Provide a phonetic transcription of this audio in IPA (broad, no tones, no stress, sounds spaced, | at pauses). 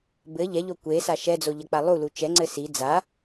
b ɘ ʎ ɛ ʎ o kʷ e s a ʃ ɛ d͡z o ʎ ɐ k͡p a lˠ u l u t͡ʃ ɛ ŋ͡ǀ ɘ s i d͡z a